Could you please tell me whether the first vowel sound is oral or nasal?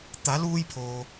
oral